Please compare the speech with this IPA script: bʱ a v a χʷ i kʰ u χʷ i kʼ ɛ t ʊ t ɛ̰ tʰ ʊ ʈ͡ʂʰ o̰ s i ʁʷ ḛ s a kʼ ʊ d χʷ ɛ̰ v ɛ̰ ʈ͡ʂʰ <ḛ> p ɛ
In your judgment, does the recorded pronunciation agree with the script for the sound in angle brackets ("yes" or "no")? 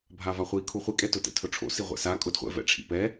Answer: no